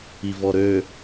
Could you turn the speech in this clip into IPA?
i v ɔ ɾ ø

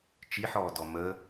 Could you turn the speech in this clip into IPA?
t͡ʃ i ħ ɔː d ɔ m ə

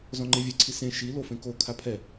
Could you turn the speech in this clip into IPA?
z ɔ̃ ŋ͡ǃ e vʲ ɛ ǀʰ i s ẽ ʃ i l o f ẽ k o kʰ a pʰ ɛ

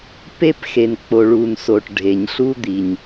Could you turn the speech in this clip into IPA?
p e˧ p x e˩ n k͡p o˩ ɭ u˩ n s o˩ ʈ ɖʱ e˩ ɲ ɬ u˧ d̪ i˩ ɲ

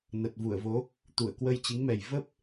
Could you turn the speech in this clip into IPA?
n ə˨˩ t̚ v u˧˩ ə̯ v o˨˦ | t̪ u˧˩ ə̯ k w ə˧ j t͡ɕ i˨˦ ŋ m ɛ˨˩ j v ə˦˥ p̚

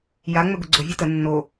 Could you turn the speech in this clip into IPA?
j a ŋ͡m ɵ ɡ ʊ ɡ͡ǀ ʊ vʲ ɔ t ə nː o

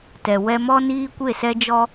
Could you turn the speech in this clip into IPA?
t ɛ˨ w ɛ˧ m ɔ˦ n iː˦ kʷ e˦˨ s ɛ˦ d͡ʒ ɔ˦

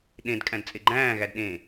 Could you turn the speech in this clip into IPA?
ɗ ẽ d kʼ æ̃ d t͡sʼ e ɡ͡ǃ æ̃ː ɣ æ d ɗ ẽ

